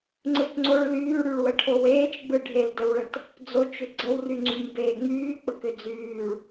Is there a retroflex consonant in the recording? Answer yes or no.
yes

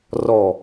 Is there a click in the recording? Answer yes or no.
no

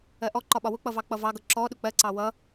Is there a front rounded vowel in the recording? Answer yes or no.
no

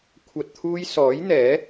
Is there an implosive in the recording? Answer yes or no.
no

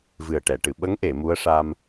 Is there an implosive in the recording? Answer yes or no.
yes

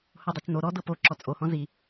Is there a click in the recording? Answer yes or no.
yes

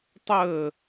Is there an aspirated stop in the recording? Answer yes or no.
no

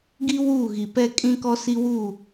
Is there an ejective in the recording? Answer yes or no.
yes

